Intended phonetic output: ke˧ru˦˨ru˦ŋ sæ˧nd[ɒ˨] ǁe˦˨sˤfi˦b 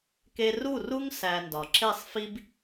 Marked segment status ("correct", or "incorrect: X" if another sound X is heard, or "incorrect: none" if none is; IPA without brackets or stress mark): correct